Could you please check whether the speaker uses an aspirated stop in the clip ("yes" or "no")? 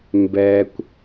no